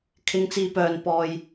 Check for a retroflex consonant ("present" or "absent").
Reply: absent